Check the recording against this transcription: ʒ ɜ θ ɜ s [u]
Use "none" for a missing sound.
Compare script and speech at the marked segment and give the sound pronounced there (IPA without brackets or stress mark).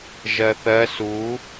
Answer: u